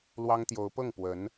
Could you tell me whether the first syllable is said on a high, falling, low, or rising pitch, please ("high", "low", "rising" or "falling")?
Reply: high